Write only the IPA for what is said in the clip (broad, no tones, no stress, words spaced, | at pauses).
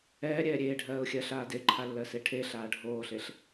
ɛːɾʲɛː ɾʲeːɖʱɜːʊ̯xʲɜːɬaː deǃʰalːɜse ʈʰeɬaː ɖʱoːɬeɬ